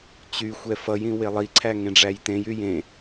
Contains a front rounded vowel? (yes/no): yes